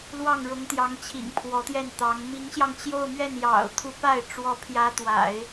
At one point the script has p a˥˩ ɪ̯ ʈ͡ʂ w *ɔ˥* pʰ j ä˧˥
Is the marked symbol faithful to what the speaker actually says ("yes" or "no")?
no